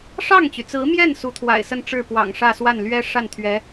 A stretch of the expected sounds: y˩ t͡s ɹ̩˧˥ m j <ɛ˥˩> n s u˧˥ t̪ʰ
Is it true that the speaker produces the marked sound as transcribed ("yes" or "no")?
yes